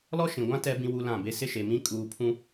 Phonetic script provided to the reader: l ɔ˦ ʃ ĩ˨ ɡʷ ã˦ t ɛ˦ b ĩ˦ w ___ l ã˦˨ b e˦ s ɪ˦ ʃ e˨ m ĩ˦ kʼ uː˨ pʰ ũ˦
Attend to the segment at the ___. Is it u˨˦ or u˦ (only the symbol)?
u˦